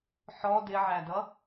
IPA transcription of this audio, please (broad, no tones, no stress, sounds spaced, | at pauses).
ħ ɔ d ɪ ʕ æ d ʌ